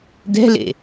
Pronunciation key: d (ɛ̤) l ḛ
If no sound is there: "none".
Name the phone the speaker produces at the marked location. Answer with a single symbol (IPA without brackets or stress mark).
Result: ɛ̤